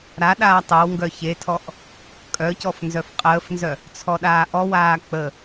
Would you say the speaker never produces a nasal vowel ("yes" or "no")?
yes